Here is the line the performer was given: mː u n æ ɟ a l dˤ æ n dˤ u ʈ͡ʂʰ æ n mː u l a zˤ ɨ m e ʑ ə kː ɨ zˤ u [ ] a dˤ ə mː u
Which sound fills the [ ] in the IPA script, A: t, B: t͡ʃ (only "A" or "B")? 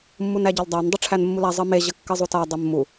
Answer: A